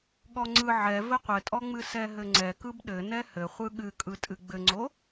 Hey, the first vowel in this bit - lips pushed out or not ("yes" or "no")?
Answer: yes